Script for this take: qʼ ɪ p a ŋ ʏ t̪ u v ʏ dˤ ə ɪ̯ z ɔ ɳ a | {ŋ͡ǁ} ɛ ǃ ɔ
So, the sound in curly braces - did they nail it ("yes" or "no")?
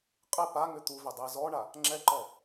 yes